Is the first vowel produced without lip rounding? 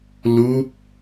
no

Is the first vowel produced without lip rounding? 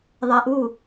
yes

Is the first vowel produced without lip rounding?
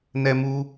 yes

